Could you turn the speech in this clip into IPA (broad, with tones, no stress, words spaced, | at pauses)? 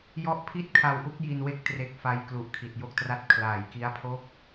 jɔ˦˥ʔpʰi˥˩t̚kʰa˧wʔu˦˥k̚ ji˧nwe˦˥k̚ tre˥˩k̚ fa˧jklu˨˩ʔ kʰi˨˩t̚jo˦˥k̚tra˦˥t̚ kʰlaː˨˩jki˦˥a̯pʰo˥˩k̚